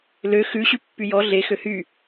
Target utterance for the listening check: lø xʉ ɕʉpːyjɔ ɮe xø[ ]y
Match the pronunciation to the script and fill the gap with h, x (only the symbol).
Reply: h